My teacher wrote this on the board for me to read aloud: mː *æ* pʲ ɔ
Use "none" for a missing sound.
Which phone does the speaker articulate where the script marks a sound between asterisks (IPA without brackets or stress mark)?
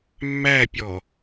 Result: æ